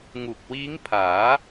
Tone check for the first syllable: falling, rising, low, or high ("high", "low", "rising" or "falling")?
low